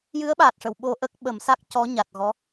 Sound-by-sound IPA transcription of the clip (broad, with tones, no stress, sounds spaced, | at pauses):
j ɨ˧˥ ə̯ ɓ aː˨˩ t̚ ʂ ə˨˩˨ w ɓ o˧ ʔ ə˦˥ k̚ ɓ ə˨˩˦ m s a˦˥ k̚ c ɔ˧˥ ɲ a˨˩ t̚ ɣ ɔ˧˥